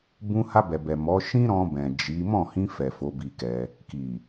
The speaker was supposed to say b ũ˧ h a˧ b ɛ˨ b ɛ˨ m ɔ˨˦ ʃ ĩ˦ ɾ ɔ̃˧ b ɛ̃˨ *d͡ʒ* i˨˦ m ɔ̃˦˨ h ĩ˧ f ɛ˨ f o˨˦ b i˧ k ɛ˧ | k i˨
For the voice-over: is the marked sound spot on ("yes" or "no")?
yes